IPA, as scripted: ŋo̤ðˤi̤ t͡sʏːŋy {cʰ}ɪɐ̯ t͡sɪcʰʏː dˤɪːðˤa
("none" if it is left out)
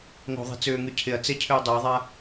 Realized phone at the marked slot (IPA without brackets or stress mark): cʰ